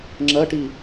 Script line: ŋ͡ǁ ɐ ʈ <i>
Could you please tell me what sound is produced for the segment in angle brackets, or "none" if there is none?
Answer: i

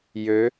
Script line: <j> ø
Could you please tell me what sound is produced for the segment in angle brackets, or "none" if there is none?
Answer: j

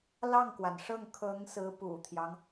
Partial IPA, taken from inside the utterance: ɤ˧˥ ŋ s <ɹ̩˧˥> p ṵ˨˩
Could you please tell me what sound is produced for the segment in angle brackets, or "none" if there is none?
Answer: ɹ̩˧˥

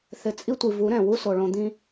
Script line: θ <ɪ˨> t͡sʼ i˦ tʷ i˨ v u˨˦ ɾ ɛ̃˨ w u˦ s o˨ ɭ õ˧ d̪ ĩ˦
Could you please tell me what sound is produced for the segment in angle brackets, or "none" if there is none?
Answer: ɪ˨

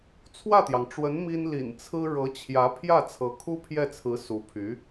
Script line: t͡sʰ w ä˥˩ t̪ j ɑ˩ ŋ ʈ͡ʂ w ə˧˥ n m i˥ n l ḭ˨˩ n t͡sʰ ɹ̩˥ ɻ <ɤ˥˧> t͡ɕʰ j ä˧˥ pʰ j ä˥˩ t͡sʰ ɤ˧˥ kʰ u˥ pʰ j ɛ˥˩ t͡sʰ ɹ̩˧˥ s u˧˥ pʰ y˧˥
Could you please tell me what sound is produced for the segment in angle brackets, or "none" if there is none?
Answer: ɤ˧˥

